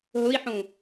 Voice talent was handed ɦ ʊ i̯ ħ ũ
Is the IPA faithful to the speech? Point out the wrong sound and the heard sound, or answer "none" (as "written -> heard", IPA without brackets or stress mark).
none